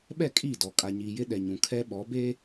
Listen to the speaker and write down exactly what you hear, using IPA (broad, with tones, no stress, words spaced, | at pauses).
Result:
ɓɛ˦˨kʼiː˦˨dɔ˨ kʼa˨ɲiː˨jɪ˦ ɗɛ˨ɲũ˨ kʰɛ˦ ɓɔ˨˦beː˦